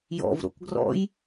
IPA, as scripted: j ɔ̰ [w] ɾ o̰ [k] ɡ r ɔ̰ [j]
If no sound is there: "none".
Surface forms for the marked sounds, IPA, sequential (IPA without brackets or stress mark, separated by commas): v, k, j